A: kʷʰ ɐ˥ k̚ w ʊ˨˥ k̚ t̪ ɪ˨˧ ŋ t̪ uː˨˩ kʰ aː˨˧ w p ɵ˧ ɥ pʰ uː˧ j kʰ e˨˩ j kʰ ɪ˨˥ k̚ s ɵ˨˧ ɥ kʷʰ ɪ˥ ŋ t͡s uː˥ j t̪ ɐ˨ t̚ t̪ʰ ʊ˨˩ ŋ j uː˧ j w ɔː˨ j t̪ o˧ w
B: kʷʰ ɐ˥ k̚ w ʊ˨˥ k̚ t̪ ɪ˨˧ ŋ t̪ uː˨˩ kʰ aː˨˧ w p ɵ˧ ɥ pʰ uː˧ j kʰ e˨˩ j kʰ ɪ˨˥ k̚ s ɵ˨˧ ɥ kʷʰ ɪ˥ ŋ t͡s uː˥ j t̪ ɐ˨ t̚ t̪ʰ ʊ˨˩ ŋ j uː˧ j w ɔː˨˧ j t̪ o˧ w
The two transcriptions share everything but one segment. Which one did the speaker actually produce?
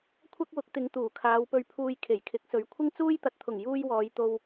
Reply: B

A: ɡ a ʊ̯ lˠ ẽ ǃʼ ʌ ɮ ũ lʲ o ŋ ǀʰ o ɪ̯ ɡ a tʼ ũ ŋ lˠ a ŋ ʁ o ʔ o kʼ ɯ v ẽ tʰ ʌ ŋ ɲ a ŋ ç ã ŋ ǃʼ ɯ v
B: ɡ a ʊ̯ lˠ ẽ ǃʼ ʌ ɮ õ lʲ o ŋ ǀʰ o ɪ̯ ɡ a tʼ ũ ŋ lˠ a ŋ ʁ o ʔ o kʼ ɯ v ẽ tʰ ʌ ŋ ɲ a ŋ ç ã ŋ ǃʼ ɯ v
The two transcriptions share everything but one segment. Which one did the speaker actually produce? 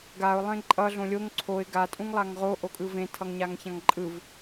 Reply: B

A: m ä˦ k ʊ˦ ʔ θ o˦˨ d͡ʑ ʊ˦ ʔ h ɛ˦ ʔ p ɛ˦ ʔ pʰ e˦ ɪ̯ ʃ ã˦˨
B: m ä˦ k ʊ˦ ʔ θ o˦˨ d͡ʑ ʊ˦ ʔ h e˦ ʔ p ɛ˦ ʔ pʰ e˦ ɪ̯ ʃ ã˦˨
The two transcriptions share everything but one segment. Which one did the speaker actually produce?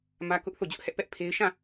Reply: A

